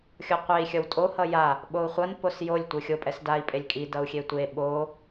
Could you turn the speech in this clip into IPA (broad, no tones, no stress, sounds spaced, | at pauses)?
xʲ o qʷ e i̯ xʲ ʌ w tʼ o h ʌ j a | ɓ o u̯ χʷ ʌ n p o s j o lʲ tʷ ɯ xʲ o pʼ ɛ s d a i̯ pʼ e lʲ kʼ i d ʌ u̯ xʲ e tʷ e ɓ o